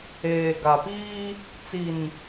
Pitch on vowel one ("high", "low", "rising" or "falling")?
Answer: low